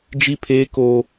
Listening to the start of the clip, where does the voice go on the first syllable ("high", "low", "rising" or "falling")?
high